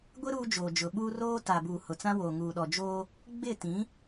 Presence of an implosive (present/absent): present